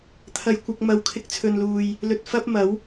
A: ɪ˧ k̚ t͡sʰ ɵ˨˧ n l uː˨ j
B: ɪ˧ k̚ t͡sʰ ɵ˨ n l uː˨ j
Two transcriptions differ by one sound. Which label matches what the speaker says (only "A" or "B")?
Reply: B